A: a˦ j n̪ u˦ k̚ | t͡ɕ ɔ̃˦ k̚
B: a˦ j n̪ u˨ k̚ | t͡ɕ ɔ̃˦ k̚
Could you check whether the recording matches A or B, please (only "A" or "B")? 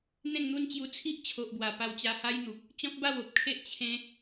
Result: B